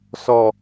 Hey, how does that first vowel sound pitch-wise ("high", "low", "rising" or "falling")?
low